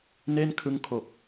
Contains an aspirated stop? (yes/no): yes